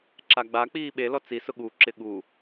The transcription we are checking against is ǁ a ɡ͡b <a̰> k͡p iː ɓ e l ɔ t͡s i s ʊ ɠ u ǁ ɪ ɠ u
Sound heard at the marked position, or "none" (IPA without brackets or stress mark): a